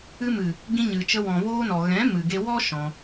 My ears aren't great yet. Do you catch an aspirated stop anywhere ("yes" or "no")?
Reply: no